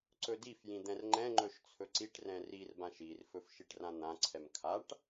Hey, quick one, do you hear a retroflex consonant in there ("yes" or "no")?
yes